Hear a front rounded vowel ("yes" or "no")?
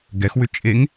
yes